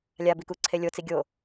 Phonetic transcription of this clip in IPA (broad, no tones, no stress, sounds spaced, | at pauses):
lʲ a b i k u ǀʰ e lʲ o t͡s i ɡʲ o